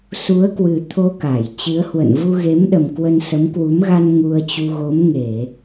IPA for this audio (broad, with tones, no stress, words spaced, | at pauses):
su˨˦ə̯kwɨ˨˩ t̪ʰo˧ka˧˩j t͡ɕɨ˨˦ə̯hwə̰˧˨n vu˧ɣe˨˦mɗə˨˩m kwə˧nsə˨˦m kwu˨˦mɣa˧n ŋu˧ə̯t͡ɕu˧ ɣo˨˦mŋe˧˩˨